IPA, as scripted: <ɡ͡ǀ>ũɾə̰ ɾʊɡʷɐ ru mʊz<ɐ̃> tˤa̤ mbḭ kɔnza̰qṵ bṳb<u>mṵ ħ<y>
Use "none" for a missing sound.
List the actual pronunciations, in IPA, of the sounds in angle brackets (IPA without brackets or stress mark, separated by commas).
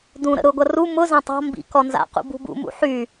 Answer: d, ɐ̃, ṵ, y